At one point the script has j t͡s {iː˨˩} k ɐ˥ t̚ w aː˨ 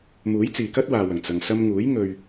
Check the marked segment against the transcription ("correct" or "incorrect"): incorrect